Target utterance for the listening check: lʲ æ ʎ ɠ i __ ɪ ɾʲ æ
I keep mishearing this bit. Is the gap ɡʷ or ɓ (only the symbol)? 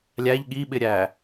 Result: ɓ